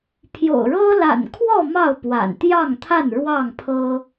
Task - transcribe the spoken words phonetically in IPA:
pʰjo̰˨˩ʊ̯ɻɤ˦ la̰˨˩nkʰwɔ˥˨ mɑ˥˨ʊ̯pwa̰˨˩nt̪jɑ˥˨ŋt̪ʰa˥˨n ɻwɑ˥˨ŋpʰɤ˦

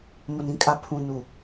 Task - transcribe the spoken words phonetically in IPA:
mʊ˨nĩ˦kʼa˨ pʰũ˨ nu˨

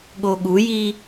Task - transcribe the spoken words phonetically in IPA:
ɠoɠuji

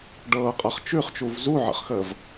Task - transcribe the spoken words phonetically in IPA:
ɖɤːqʼɤχ t͡ʃʉχt͡ʃuv zuʕə̰χxəːv

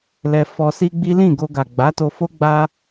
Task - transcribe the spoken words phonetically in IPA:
lɛ˧fɔ˧si˦ɡ͡bi˦ lĩ˦˨ɡo˧ɡa˨ ɡ͡ba˨˦to˧fo˦ ɡ͡ba˦

